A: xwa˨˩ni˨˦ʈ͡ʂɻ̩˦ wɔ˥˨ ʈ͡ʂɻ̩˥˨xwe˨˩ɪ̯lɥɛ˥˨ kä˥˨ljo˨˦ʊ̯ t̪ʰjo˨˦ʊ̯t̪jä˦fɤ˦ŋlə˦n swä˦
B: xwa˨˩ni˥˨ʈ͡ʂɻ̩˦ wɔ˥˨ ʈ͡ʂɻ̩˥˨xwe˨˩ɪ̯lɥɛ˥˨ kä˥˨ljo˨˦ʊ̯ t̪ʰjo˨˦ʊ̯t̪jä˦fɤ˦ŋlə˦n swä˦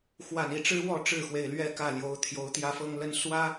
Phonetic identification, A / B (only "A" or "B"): B